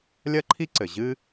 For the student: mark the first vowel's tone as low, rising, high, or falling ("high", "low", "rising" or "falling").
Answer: high